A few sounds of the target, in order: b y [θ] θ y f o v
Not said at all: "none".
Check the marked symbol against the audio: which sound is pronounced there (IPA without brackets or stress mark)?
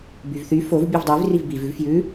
v